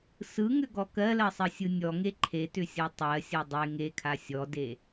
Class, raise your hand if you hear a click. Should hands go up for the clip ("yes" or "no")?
yes